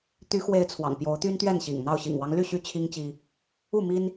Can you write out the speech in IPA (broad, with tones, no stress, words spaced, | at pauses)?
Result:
t̪y˨˦xwe˨˦ɪ̯ t͡sʰwɑ̰˨˩ŋpjo˨˦ʊ̯ t̪y˦nt̪ɥɛ˥˨nɕḭ˨˩ŋn̪ɑ˥˨ʊ̯ ɕḭ˨˩ŋwɑ˦ŋly˥˨ ɕy˦t͡ɕʰi˦ŋt͡ɕi˦ | u˥˨mi˦n